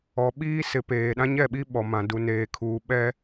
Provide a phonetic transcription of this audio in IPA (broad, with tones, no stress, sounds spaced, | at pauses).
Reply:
ɔ˨ ɓ iː˦ s ɪ˨ p eː˨ ɗ ã˦ ɲ ɛ˦˨ ɓ i˦ ɓ ɔ˨ m ã˨ d u˨ n eː˨ kʰ uː˨ ɓ ɛ˦